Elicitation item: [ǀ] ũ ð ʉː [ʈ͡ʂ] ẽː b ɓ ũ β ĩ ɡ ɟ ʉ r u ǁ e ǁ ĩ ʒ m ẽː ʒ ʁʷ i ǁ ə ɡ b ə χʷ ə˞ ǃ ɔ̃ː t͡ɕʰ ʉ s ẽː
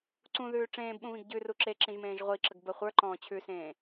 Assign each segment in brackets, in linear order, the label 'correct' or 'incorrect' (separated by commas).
correct, correct